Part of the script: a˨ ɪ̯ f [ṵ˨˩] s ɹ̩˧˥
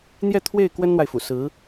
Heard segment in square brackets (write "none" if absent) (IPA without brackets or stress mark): ṵ˨˩